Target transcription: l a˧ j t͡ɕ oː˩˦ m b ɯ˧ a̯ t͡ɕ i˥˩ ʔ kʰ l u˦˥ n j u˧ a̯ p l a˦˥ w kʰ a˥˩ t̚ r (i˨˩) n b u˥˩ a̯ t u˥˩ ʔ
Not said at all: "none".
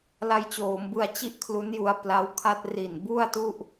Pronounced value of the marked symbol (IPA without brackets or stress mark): i˨˩